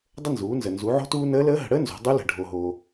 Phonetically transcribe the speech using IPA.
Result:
dˤ ə˥ n z uː˩˥ n z ə˨ n z u˩˥ ʕ o̤˥ t uː˥ n əː˧˥ l əː˧˥ ɦ ə̤˨ ɽ əː˥ n z o̤˩˥ dˤ u˧˥ l ə̤˨ ɖʱ o˨ ɦ oː˨

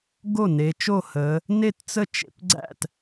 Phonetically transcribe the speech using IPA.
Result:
ɡ o˥˩ n e˩˧ t͡ʃ o˥˩ h ə˩˧ | n e˥˩ t t͡s ə˥˩ t͡ʃ ḛ˩˧ p ɡ͡ǀ æ̰˥˩ t

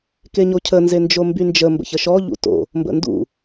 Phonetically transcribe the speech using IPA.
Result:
k e ɲ o cʰ ə n z e n d͡ʒ o m b y n d͡ʒ ə m b ə̰ ç ə ʃ ɔ ʎ ṵ t o̰ | m b ə̰ n d ṵ

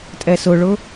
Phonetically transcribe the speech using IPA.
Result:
tʼ ɛ s ʊ ɭ ʊ

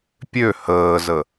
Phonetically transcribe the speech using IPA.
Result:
pʲ ø h əː z ə

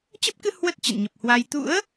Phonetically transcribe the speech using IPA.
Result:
t͡ɕ ə˦˥ p̚ k ɨ˧ h w ə˦˥ t̚ t͡ɕ ə̰˧˨ n ɲ ə˨˩ p̚ h w a˧ j t̪ ṵ˧˥ ə̯

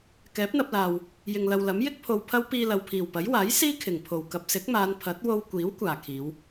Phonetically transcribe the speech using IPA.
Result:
k ɛː˨˥ p̚ n̪ ɐ˧ p̚ l aː˨ w | j ɪ˨ ŋ l ɐ˨ w l ɐ˨˥ m j ɪ˥ k̚ pʰ o˧ w pʰ ɐ˥ w p iː˧ l ɐ˨ w pʰ iː˨˩ w p ɐ˨˥ j w aː˨˥ j s iː˥ kʰ ɪ˨˩ ŋ pʰ o˨˩ w k ɐ˨ p̚ s ɪ˨˥ k̚ m aː˨˧ n pʰ ɐ˨˥ t̚ w o˧ w kʷ iː˨˥ w kʷ aː˨˩ kʰ iː˨˧ w

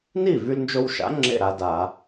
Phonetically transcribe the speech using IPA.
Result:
n i˥˩ v y˧ l n d͡ʒ o˧ w ʃ a̰˩˥ ŋ͡ǁ ḛ˥˩ ɾ a˧ d a˧˩˧

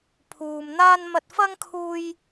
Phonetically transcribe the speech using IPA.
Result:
pʰ uː˨ m n̪ aː˥ n m ɐ˧ t̚ f ɐ˥ ŋ kʰ uː˧ j

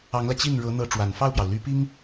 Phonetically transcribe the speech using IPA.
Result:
ɑ˧˥ ŋ l ä˧ t͡ɕ i˥˩ n ɻ ɤ˧˥ n̪ ɤ˧˥ ʈ͡ʂ w a˨˩ n f ɑ˥˩ ʊ̯ p j ɑ˩ ʊ̯ l y˧˥ p i˥ ŋ

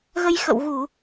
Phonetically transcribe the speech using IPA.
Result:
ɣ ə˧ j x ə̰˧˨ w ɣ u˧˩˨

